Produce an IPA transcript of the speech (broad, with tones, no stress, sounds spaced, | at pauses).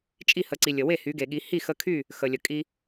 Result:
t͡ʃʼ i˥˩ h ə˩˧ ǀ i˩ lʲ ə˩ w e˥˩ h y˩˧ ɡ e˩ ɠ i˩˧ h i˥˩ x ə˧ kʰ y˥˩ | x ə˩ lʲ ə˩ kʼ i˧